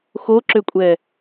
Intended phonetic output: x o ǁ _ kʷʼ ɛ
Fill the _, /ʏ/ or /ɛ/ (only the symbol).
ʏ